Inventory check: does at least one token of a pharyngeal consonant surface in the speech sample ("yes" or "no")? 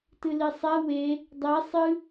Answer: no